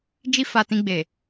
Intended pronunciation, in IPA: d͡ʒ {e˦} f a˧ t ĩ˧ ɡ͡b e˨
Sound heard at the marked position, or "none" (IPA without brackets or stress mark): i˦